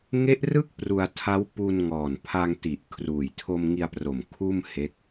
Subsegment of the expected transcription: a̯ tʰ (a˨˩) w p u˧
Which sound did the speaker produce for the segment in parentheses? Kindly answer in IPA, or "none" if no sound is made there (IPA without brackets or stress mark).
a˦˥